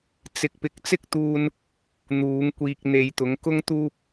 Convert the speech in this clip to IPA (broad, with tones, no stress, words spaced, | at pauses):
t͡sɪ˧k̚ pɪ˨˥k̚t͡sɪ˥k̚t̪uː˧n | n̪uː˨˧ŋkʷiː˧k̚n̪e˧j t̪ʊ˨˧ŋkʊ˥ŋt̪uː˥p̚